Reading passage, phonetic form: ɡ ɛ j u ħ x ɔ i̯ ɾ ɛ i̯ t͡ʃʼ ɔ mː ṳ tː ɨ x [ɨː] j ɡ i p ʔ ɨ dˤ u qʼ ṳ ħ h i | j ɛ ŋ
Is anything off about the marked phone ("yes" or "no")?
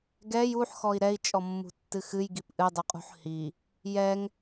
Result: yes